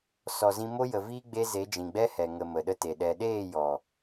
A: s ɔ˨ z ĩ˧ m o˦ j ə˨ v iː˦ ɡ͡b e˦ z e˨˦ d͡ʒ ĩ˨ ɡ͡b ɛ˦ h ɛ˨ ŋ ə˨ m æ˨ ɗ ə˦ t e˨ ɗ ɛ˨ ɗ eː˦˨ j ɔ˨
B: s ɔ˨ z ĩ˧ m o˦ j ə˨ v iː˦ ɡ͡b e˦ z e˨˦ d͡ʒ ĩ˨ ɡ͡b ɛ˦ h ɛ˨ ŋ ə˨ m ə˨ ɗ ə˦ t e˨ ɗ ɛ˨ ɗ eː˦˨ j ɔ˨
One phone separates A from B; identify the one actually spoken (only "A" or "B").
B